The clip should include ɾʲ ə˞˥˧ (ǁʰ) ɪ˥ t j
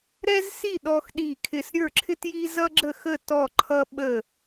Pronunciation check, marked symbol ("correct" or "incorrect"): correct